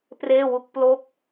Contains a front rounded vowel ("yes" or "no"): no